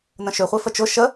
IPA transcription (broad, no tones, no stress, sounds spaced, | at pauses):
n ə̃ ʃ ʏ χʷ e f ə t͡ʃ ʊ ʃ ə